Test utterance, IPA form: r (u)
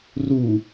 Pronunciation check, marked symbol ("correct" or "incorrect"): correct